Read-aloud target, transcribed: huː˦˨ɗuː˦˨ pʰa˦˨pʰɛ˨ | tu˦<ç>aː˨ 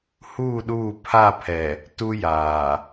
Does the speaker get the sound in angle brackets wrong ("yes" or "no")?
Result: yes